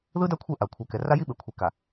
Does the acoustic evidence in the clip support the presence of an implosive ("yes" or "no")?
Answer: yes